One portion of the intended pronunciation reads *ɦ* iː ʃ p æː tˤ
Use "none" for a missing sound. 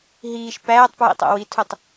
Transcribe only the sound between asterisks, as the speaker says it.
ɦ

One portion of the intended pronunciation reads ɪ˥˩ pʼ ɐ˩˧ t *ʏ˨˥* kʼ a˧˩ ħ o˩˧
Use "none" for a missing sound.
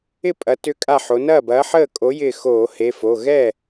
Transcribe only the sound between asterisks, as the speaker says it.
ʏ˨˥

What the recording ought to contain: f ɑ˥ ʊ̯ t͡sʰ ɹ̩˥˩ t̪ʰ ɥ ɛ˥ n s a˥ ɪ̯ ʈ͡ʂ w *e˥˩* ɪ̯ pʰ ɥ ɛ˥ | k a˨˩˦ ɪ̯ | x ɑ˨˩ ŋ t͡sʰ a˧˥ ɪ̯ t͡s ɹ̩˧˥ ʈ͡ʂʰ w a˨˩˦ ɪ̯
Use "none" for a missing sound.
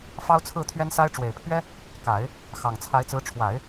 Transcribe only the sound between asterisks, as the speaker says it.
e˨˩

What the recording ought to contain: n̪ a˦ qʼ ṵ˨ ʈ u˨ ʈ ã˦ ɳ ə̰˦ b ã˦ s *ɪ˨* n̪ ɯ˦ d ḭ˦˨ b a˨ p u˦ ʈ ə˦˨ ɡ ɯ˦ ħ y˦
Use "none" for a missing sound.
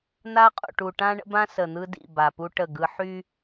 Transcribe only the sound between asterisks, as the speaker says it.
ə˨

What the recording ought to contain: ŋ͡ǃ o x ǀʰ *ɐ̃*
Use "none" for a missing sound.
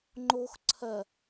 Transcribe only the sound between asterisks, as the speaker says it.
ɐ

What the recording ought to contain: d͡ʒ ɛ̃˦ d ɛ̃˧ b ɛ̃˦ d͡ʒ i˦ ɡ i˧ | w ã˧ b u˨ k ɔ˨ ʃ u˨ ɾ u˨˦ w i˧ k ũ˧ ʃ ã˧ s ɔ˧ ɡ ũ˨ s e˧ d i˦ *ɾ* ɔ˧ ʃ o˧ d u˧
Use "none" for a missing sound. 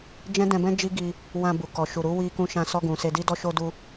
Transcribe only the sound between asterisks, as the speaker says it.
d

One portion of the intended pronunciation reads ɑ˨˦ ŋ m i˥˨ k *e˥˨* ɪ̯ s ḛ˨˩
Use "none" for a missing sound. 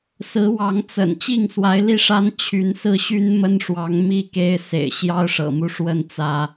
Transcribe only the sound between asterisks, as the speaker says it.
e˦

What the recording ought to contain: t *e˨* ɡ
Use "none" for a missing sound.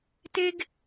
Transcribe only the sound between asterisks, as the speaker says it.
e˦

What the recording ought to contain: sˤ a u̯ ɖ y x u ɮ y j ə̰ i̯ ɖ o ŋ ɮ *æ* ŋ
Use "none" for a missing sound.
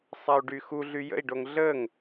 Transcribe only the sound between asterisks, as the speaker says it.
ə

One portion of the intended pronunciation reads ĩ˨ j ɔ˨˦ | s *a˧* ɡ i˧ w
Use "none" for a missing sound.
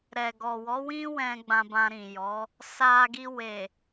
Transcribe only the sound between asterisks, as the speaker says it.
a˧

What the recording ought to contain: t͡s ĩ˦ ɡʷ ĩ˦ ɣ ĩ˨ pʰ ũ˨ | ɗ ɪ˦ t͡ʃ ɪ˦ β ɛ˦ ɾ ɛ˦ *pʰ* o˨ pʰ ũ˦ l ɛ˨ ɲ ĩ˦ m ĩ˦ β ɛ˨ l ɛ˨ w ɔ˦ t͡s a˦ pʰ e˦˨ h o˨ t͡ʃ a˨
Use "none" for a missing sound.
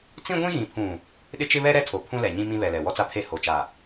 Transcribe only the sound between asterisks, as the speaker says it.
tʰ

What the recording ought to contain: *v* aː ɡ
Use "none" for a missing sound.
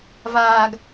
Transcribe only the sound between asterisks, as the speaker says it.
v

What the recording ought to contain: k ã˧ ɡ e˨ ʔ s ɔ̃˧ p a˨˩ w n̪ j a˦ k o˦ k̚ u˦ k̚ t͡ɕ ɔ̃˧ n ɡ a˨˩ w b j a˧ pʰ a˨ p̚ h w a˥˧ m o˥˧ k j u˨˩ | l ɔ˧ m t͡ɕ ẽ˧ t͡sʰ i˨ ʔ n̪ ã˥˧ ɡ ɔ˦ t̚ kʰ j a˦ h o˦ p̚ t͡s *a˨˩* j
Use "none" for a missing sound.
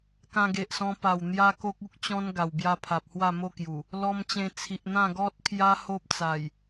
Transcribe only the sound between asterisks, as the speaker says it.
a˨˩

